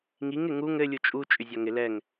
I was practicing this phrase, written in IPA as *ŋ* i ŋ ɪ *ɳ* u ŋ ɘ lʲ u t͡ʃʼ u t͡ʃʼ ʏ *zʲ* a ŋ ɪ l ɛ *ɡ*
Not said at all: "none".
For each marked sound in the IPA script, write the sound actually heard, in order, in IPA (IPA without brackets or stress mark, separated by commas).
ŋ, ŋ, zʲ, ŋ